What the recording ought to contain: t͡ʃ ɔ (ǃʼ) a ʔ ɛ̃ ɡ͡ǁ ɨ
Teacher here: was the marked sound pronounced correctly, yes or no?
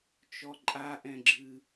yes